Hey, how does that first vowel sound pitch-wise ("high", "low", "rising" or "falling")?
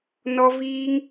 high